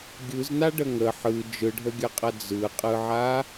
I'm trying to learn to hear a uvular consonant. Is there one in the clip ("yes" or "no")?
yes